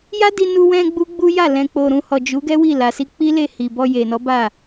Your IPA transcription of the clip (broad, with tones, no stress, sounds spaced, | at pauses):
j a˦ d i˧ n u˧ w ɛ̃˧ ɡ͡b u˦ ɡ͡b u˦ j a˦˨ l ɛ̃˨ k͡p o˨ ɾ ũ˨ h ɔ˨ d͡ʒ u˨˦ ɡ ɛ˦ w i˦˨ l a˨ s i˧ k͡p i˦ l e˦˨ h i˨ b ɔ˧ j e˨ n ɔ˨˦ b a˦˨